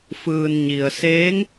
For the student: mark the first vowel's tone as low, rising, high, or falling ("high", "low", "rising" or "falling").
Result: low